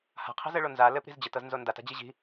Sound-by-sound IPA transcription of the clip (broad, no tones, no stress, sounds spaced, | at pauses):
h a̤ qʰ i̤ z ɘ ɭ o n z a l ɘ p ɾ i̤ z d͡ʑ ɘ t ɤ z n z o n d a t a̤ d͡ʑ i ʑ i̤